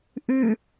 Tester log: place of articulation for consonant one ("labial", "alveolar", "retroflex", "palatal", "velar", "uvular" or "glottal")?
glottal